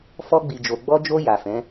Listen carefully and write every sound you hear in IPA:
f ɔ˧ ɡ͡b i˨ d͡ʒ o˨ ɡ͡b ɔ˧ d͡ʒ o˧ j a˨ f ɛ̃˨˦

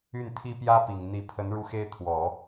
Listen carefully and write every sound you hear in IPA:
y˥˩ n t̪ʰ i˥ p j ä˥ p i˨˩ ŋ n̪ i˧˥ pʰ ə˧˥ n ɻ u˥˩ x e˥ ɪ̯ t̪ʰ w ɔ˨˩˦

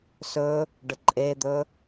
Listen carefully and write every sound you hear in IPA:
s ɵ | ɖ ə ǃʼ e d̪ ɵ

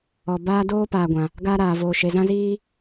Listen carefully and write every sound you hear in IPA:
ɔ˨ b aː˦ d oː˦ p aː˨ ɡʷ ã˨ | ɡ aː˦ ɾ aː˨ v oː˨ ʃ e˨ z ã˦ z iː˦

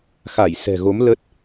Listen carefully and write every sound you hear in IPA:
x a˧˩ j s ɛ̤˨˩ ɣ o˨˦ m l ə˦˥ t̚

